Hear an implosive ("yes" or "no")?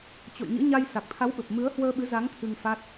yes